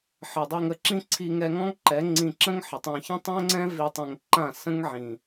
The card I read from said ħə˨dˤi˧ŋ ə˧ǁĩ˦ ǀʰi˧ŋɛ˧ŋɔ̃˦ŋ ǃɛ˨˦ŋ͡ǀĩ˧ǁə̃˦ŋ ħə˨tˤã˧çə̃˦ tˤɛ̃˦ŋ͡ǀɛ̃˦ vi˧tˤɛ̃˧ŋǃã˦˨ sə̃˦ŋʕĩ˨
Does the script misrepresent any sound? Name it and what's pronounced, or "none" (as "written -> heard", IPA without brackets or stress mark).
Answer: none